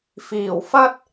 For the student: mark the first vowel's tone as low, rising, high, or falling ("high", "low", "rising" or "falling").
low